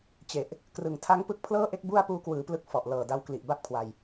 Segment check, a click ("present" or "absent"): absent